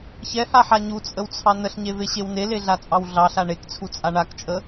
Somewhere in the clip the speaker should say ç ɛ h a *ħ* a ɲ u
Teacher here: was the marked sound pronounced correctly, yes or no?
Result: yes